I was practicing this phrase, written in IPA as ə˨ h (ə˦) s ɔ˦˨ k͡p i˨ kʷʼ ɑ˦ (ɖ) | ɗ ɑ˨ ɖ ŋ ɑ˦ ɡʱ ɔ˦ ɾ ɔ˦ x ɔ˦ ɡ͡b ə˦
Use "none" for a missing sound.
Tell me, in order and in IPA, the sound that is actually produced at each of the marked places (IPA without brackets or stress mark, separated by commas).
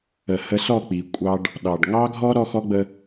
ə˨˦, ɖ